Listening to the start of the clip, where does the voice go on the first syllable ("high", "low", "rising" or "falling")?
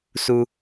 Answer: high